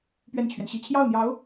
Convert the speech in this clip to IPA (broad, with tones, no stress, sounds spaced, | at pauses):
p ɥ ɛ˥˩ n t͡ɕʰ ɥ ɛ˩ n ɕ i˥˧ t͡ɕʰ j ɑ˥˩ ʊ̯ n̪ j ɑ˧˥ ʊ̯